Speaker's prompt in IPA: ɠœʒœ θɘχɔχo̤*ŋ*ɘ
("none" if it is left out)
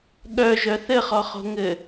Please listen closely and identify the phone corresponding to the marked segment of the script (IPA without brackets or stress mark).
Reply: ŋ